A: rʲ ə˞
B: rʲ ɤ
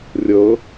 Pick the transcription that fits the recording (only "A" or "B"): B